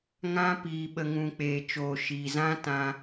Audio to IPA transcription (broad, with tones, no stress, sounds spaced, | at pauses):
ŋ ã˦ p iː˨ ɓ ə˨ ŋ ũ˨ k͡p eː˨ t͡ʃ oː˨ ʃ iː˨ z ã˦ t ã˧